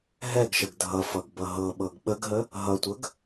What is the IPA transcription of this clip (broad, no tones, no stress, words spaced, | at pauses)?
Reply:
ɦɛɡʃəɡ dʱʌfʌɡ bʌɦɤɓɤɡ ɓəɡɦə | ɦʌtʷəɡ